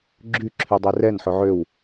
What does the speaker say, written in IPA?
ɡ͡ǁy ǁʰydˤerɛn ħɵʕøw

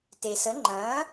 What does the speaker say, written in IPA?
te˩sə˩˥ ŋ͡ǃɐ̃ː˩˥

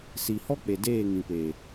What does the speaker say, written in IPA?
si˨hɔ˦k͡pe˨ deː˦˨ŋĩ˨pe˨

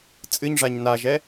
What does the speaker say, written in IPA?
t͡sʼɨɲʐaɲ naʒɛ

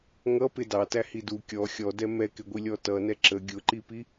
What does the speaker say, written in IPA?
ŋʌpɪ dɑtæhi du kʲɔ xʲɔdɛ mɛkɪɡʷilʲɔ tʌnɛ ǁə ɡʲʊǃipi

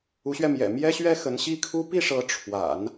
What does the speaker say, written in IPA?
u˧˥ɕɥɛ˧mjɛ̰˨˩ mjɛ˥ɕɥɛ˥ xə˧˥nɕi˥kʰu˥ pi˥˩ʂɤ˧˥ ʈ͡ʂʰwa̰˨˩˦n

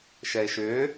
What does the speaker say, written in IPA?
ʃɛe̯ʃʏː

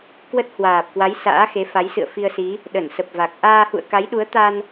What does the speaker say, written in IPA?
kwə˦˥t̚hwaː˨˩p̚kwa˨˦j sa̰ː˧˥xe˨˦fa˨˦j sɨ̰˧˨ə̯fi˧ə̯si˨˦ | ɗə˧˩nsə˨˩p̚va˨˩k̚ ʔaː˧hṵ˧˨ə̯ka˨˦jɗu˨˦ə̯ t̪a˧n

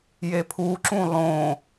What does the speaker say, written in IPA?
jepʰuǁũ lˠõ

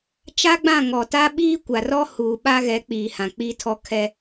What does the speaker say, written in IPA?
t͡ʃa˦ɡ͡bã˦˨ŋɔ˨ta˦ ɓiː˦kʷa˨rɔ˦ huː˨ɓa˦ɣɛ˨˦k͡piː˨ hã˨k͡piː˦tʰɔ˦ kʰɛ˦

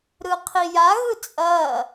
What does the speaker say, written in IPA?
ɾɯqʰija ɣɯt͡sʼɐː

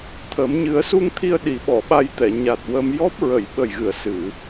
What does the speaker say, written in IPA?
t̪ʰəː˨˩˦m ɲɨ˨˩˦ə̯su˧ŋt̪ʰi˧ə̯ ɗi˨˩˦ɓɔ˨˩˨ɓa˧jt̪ɛ˨˩˨ ɲa˨˩t̚wəː˧m jɔ˦˥p̚ɹə˨˩˨j ɓə˨˩jɣɨ˨˩˨ə̯ sɨ˨˩˨

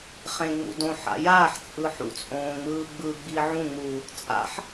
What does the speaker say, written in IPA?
χẽŋ͡mṵ dõħa̰ jaːħ t͡sʼɯħṵt͡sʼõː ŋ͡mɯːɡ͡bɯɡ͡bi ʕũŋ͡muː | t͡sʼa̰ħ

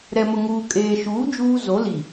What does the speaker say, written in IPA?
ɾɛ˨mʊ˨ŋuː˨ kʼeː˨ʃuː˨˦ d͡ʒuː˦ zo˨˦li˨

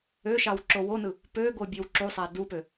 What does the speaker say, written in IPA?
øʃɑw ǁowonɯ | pøɡo bʲøwǁusˤæ dupø

